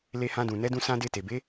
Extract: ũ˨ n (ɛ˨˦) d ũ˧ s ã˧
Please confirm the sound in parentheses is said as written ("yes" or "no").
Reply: yes